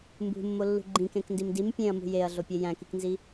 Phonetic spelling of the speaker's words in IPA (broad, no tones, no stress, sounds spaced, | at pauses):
m b ṳ mː o lː ṳ ɡ͡ǃ ĩ k ẽ k n d i m d i m pʲ ẽ ɐ̯ m ṳ j e ɐ̯ ɮ o pʲ e j æ̃ k i k n z i